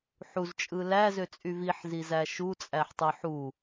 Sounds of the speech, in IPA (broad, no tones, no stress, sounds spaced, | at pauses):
ħ u z t͡ʃʼ ɯ l æ z ø t͡sʼ y v i ħ z i z æ ʃ u t͡sʼ æ ħ tˤ ɯ ħ u